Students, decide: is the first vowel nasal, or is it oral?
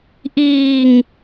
oral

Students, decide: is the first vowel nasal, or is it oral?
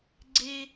oral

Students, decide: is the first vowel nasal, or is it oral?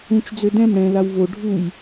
nasal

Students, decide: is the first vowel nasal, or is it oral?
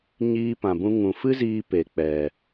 oral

